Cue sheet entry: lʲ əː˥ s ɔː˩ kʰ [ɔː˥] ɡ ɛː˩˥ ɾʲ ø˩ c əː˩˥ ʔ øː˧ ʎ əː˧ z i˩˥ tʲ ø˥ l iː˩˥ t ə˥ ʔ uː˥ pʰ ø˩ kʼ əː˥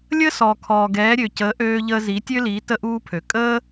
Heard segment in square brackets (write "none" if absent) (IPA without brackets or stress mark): ɔː˩